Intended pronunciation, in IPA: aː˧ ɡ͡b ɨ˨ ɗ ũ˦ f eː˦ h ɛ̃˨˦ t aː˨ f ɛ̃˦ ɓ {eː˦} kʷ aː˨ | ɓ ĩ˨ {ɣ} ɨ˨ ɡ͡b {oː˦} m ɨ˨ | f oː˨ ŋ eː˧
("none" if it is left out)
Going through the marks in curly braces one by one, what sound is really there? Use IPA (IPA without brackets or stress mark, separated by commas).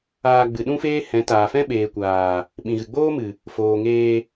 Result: eː˨, ɣ, oː˦